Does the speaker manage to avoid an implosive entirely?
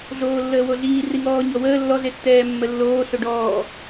yes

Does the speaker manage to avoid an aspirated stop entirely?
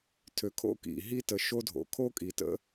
no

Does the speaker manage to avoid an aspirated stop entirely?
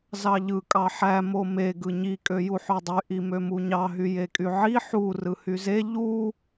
yes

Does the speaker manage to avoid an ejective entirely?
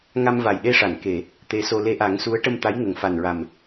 yes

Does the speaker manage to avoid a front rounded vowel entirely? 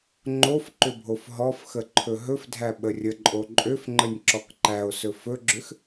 no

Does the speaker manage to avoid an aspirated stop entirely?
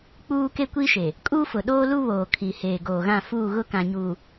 no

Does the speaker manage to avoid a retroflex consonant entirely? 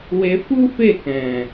yes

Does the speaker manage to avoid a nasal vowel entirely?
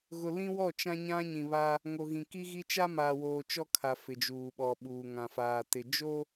no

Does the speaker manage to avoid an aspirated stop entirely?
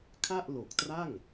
no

